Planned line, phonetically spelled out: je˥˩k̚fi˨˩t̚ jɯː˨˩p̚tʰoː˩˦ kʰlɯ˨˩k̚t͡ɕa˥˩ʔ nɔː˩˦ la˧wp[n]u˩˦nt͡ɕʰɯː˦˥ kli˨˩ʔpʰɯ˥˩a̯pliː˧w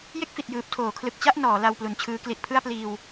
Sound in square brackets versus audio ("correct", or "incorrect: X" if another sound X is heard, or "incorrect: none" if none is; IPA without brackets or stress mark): incorrect: l